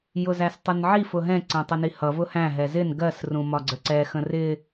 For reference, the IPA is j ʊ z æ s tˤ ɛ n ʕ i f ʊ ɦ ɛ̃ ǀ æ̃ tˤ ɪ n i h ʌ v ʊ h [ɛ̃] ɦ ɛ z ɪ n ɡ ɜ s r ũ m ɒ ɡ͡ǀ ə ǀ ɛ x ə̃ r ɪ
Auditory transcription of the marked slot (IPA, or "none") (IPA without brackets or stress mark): æ̃